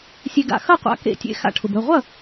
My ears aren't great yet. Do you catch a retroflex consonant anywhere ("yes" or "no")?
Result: yes